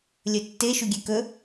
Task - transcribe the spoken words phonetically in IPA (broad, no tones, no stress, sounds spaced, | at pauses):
lʲ ɵ tː e ʃ u ɡʲ e k ɵ